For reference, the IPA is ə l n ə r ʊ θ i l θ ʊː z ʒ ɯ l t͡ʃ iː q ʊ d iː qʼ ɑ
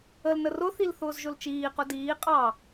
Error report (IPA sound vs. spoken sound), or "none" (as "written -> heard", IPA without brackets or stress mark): ɯ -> ʊ